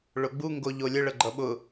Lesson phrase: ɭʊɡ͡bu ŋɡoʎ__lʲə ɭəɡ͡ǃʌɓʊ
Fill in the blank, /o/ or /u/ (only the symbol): o